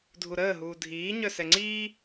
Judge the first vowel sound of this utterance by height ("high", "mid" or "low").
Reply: high